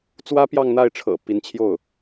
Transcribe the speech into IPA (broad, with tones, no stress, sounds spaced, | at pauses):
t͡s w ä˥ p j ɑ˥˧ ŋ n̪ a˥˩ ɪ̯ ʈ͡ʂʰ ɤ̰˨˩ p i˧˥ n t͡ɕʰ j o˥˩ ʊ̯